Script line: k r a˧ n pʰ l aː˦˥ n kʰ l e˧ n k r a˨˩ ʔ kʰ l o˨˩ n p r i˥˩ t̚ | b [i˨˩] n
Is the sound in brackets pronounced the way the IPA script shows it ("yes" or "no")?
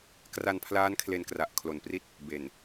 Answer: no